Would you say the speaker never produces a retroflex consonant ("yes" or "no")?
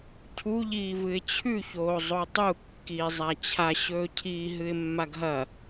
yes